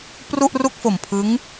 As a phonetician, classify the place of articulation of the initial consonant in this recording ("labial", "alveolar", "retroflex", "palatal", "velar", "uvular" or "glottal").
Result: labial